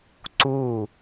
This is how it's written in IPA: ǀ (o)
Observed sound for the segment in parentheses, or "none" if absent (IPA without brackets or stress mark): u